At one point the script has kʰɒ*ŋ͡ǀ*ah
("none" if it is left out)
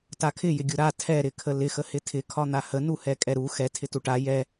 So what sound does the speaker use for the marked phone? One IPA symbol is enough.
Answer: n̪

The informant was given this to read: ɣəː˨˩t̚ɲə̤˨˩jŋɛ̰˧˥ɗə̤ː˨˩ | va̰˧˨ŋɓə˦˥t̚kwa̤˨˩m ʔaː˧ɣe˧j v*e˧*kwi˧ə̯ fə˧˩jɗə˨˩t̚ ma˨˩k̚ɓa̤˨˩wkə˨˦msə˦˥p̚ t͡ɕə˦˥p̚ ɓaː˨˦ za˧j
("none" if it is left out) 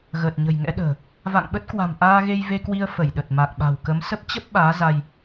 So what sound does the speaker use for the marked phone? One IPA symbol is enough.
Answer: e˧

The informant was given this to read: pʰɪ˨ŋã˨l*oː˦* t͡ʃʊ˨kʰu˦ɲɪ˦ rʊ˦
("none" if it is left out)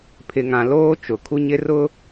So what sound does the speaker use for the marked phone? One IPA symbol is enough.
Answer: oː˦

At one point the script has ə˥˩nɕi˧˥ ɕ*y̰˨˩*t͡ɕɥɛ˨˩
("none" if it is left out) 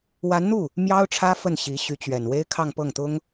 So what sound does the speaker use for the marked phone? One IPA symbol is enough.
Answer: y˧˥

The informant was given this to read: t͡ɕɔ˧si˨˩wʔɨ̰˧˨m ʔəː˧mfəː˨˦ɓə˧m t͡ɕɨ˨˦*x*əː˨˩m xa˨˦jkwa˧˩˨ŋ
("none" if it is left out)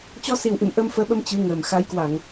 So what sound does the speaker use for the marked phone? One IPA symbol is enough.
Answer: ŋ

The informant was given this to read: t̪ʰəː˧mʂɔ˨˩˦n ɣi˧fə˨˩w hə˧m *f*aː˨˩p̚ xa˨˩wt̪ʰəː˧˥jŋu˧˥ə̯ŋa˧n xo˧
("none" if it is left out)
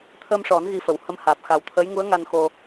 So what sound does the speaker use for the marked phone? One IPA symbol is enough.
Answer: h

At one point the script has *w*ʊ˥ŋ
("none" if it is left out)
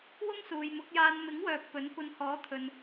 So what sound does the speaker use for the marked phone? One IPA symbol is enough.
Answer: w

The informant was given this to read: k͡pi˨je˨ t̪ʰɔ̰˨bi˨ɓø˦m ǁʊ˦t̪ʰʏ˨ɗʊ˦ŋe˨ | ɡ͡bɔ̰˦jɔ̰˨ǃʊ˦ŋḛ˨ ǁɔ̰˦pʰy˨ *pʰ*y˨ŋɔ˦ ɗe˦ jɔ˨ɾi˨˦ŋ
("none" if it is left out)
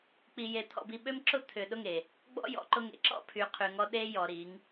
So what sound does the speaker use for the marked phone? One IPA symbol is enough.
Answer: qʰ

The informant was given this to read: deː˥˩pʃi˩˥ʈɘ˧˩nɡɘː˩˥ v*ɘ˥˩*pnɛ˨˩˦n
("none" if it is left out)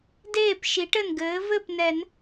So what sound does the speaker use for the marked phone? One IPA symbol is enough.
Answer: ɘ˥˩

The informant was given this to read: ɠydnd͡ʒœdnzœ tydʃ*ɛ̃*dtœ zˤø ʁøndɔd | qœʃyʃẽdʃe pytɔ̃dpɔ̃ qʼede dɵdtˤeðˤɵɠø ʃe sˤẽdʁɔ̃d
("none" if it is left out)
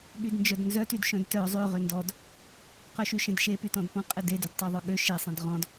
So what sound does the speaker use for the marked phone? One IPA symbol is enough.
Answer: œ̃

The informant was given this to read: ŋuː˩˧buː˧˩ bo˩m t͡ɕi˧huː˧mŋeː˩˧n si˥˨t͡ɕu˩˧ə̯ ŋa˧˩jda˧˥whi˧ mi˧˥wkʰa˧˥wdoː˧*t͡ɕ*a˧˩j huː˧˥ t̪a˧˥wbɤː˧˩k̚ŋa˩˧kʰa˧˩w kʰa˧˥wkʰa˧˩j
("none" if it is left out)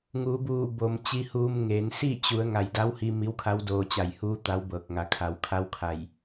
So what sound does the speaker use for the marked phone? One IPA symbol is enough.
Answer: t͡ɕ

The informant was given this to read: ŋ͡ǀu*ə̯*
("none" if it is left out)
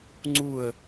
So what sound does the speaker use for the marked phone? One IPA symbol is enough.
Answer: ə̯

